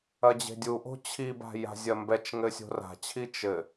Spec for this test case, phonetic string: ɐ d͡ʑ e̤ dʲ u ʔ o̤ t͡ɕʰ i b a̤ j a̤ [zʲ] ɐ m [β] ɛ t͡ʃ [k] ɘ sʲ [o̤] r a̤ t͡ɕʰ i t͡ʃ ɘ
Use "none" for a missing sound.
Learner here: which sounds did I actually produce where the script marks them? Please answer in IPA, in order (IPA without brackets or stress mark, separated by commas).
zʲ, b, ŋ, o̤